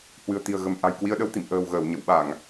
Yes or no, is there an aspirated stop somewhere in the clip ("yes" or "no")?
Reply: no